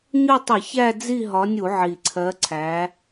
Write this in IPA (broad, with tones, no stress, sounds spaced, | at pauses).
ɲ ʊ˦˨ tˤ ɪ˧˩˧ ç æ˦˨ d͡z i˦˨ ɦ ɒ˨˦ nʲ u˧˩˧ ʕ i˨˩ ǀʰ ɜ˨˦ ǀʰ æ˨˦